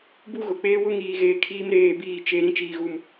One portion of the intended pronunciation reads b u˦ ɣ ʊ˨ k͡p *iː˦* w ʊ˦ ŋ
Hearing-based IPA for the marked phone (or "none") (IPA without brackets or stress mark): eː˦